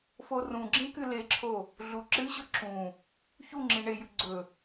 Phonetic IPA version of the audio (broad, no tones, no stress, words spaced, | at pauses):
forũɡ͡ǁĩ kɨleǁʰo | ɮuǁɨɕɵ ǁũ | çu ŋ͡ǁĩɳejʉ ɡ͡ǀɵ